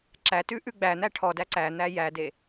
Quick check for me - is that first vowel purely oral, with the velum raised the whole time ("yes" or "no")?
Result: yes